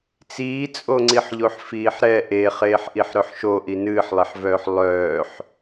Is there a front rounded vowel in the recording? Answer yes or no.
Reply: yes